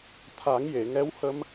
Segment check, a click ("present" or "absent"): absent